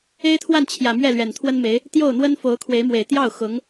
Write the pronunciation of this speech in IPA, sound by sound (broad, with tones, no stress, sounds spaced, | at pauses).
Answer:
e˥ ɪ̯ t̪ʰ w a˥˩ n t͡ɕʰ j ä˨˩ m ɥ ɛ˥˩ l ɥ ɛ˨˩ n t̪ʰ w ə˥ n m e˧˥ ɪ̯ | t̪ j o˥˩ ʊ̯ n̪ w ə˥ n f o˧˥ ʊ̯ kʰ w e˧˥ ɪ̯ m w e˨˩ ɪ̯ t̪ j ɑ˥˩ ʊ̯ x ʊ˧˥ ŋ